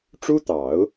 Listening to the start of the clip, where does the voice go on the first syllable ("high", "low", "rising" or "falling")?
high